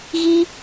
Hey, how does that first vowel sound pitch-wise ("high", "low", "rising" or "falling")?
high